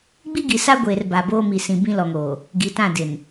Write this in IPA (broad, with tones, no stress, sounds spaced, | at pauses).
ɡ͡b i˦ ɡ i˨ s a˦ ɡʷ eː˨ r b a˨ b oː˦ m i˨ s ĩ˨ b ĩ˦ l ɔ˨ ŋ oː˨ | ɡ i˨ t ã˦˨ d ɪ˨ n